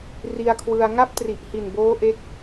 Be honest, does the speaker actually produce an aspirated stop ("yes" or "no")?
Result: yes